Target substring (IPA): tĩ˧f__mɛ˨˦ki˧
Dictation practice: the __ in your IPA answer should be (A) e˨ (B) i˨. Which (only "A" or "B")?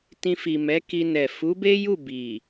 B